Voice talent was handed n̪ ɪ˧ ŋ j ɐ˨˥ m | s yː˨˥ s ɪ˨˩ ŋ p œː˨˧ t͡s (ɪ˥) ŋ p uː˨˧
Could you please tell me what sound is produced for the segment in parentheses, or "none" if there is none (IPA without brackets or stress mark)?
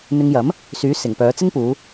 ɪ˥